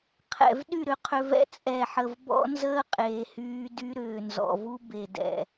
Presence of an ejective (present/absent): present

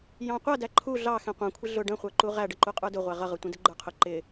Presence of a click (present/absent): present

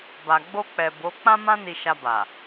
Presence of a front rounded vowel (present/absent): absent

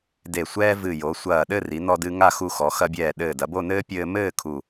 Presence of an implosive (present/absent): present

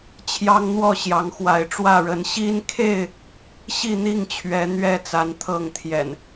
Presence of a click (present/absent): absent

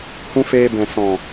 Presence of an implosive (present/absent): absent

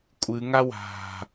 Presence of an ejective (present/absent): present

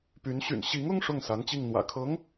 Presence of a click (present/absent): absent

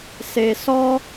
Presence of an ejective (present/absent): absent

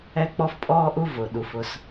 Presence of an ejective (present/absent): present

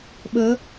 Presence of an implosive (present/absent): present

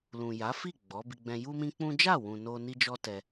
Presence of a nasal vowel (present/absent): present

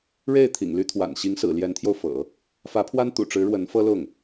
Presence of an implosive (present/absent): absent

